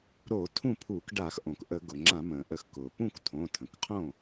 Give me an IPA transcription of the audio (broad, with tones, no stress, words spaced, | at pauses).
ɾo˧˩˧ tʰũ˥˩pʰuː˧˩˧kɖa˧˩˧x ʔõ˩kʔə˧˩˧ɡʊ˩ ŋ͡ǁã˧˩˧mə̃ː˩ʔə˧˩˧x kʊː˩ pũ˥˩ktʰõ˩˧˩ tʰə̃˩kqʰõ˥˩